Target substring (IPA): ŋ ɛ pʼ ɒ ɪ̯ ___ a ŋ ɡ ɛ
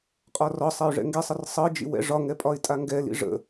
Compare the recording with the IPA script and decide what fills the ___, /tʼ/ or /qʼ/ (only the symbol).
tʼ